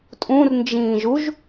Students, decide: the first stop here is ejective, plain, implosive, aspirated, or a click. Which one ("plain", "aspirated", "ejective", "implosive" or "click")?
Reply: ejective